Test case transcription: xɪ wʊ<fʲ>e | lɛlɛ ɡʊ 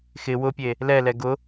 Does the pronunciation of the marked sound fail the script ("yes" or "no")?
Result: yes